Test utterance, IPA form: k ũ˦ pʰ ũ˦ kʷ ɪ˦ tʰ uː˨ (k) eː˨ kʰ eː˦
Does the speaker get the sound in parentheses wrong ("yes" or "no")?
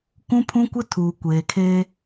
yes